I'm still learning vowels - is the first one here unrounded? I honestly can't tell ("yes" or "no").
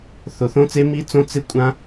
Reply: no